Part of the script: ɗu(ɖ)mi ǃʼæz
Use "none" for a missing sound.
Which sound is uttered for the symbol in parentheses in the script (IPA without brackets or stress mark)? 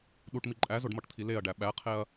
ʈ